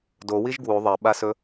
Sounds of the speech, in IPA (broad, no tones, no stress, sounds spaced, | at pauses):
d o w i ʒ ɡ w u ðˤ ɐ ɓ a s ɵ